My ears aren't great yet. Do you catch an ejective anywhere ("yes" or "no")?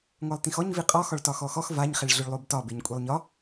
yes